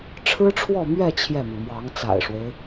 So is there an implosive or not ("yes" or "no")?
no